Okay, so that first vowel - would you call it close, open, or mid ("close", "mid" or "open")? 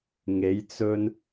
mid